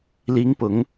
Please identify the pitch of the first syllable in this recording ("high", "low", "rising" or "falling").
rising